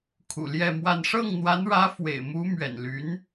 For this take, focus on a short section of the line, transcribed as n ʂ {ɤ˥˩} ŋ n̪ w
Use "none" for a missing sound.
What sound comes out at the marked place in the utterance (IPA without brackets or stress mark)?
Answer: ɤ˥˩